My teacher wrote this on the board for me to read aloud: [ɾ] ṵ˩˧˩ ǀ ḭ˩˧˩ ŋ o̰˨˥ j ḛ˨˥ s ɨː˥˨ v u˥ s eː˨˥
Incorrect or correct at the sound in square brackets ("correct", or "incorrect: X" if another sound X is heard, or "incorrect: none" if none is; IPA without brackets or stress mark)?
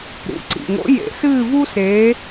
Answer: correct